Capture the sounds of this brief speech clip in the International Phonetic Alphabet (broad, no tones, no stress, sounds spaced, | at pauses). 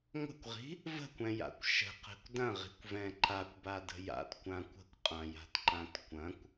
ŋʷ ə̤ kʷ ʁ i̤ | v ə̤ kʷ ɛ̃ j a̰ kʷ ʃ ə̤ q ɛ̤ kʷ d ɐ̃ ʁ i̤ kʷ v ɛ̃ ǃ a kʷ b a d ə̤ j a̰ t kʷ ã kʷ ə̤ kʷ qʼ ã j a̤ t ǃ ã t kʷ ɐ̃ kʷ